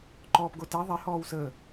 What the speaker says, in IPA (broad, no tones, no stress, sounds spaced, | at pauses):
ǃ ɔː p ɡ o t ɛ ðˤ ɛ h ɔː w s əː